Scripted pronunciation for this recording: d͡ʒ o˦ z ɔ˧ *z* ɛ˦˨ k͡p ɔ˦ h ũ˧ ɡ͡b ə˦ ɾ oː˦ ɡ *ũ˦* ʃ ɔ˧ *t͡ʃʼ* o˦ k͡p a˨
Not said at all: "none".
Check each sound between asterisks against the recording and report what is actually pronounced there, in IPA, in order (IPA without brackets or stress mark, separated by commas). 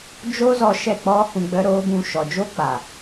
ʃ, ũ˦, d͡ʒ